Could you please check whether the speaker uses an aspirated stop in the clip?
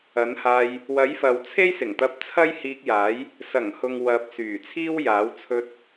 yes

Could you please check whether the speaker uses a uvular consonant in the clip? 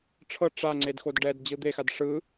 no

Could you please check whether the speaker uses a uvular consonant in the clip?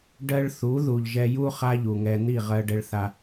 yes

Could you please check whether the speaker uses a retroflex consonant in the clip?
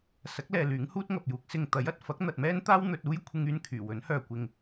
no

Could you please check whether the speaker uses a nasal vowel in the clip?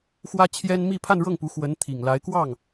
no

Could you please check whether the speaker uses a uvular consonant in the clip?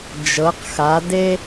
yes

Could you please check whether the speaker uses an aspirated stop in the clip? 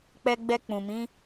no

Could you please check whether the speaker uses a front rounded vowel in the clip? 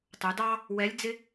no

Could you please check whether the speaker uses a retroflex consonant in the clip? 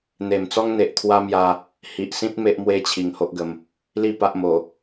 no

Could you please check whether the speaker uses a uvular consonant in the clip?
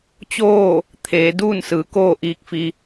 no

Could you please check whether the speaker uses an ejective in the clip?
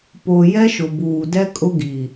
yes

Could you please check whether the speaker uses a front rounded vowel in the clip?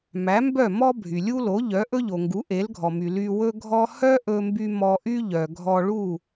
yes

